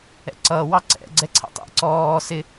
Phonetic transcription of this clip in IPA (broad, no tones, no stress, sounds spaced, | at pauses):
ɛ̰ ǀ ʌː w ɑ ǀ ɛ̰ ɡ͡ǀ ɛ ǀʰ ɛ̰ tˤ ḭ ǀ ɔː s ɪ